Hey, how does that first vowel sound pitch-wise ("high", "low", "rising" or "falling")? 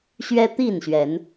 high